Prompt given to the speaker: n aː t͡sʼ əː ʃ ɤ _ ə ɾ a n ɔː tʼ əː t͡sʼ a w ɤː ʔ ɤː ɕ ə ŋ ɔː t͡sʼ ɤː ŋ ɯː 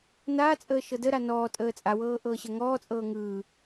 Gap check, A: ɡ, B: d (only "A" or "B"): B